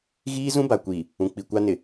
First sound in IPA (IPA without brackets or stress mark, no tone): ɣ